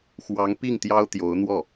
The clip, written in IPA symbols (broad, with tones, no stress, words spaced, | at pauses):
xwɑ˧˥ŋpi˥˩ŋ t̪jɑ˥ʊ̯t̪jo˧˥ʊ̯n̪wɔ˥˩